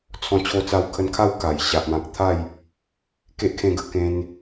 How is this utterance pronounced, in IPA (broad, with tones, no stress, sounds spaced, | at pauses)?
t͡sʰ ɔ̃˧ t͡ɕʰ o˧ t͡s a˧ w kʰ ə˧ n kʰ a˥˧ w k a˨˩ j ɕ a˨ ʔ m ã˨ k̚ t̪ʰ a˥˧ j | k e˦ ʔ kʰ ẽ˧ ɡ ə˥˧ k ẽ˧ n